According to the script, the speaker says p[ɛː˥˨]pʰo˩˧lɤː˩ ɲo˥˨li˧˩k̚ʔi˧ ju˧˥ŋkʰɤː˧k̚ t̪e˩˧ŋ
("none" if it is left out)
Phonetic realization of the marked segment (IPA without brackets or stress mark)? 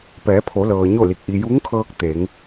ɛː˩˧